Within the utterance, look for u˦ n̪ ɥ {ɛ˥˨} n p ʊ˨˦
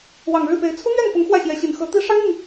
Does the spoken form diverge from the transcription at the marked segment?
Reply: no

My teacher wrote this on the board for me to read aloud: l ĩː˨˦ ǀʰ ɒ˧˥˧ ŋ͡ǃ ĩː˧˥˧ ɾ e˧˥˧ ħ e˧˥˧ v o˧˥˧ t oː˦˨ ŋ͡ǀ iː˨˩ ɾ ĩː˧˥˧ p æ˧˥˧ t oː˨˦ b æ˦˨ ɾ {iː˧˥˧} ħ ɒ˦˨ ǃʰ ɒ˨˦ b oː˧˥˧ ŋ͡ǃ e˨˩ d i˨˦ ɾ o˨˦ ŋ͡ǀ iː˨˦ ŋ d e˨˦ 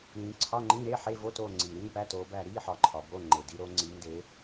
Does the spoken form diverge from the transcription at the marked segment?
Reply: no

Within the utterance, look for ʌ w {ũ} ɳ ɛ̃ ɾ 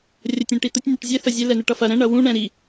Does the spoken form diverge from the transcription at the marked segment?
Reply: no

